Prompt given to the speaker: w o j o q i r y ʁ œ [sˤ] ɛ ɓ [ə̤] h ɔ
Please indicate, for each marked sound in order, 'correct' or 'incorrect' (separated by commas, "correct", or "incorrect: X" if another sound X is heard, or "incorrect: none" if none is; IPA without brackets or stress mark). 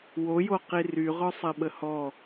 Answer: correct, incorrect: ə